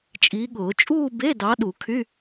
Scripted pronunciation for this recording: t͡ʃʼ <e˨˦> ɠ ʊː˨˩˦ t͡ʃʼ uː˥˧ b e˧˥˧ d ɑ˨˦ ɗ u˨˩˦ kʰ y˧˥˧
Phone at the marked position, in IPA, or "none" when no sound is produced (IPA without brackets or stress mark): i˨˦